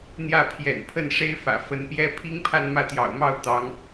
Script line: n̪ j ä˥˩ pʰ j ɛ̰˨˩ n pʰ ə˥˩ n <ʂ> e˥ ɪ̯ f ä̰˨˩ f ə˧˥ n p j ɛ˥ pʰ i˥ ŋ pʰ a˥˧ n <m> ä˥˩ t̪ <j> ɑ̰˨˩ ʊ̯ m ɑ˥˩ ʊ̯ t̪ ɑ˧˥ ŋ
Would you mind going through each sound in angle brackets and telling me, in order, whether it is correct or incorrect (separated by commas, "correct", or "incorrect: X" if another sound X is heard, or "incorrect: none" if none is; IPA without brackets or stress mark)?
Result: correct, correct, correct